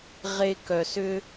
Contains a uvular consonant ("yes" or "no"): yes